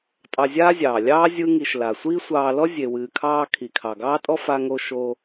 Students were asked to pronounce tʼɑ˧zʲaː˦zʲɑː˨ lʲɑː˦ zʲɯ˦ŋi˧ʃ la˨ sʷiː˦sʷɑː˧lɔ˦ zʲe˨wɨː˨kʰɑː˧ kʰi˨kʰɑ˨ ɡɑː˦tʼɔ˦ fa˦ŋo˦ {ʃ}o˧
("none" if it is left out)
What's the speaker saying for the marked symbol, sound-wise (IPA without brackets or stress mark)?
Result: ʃ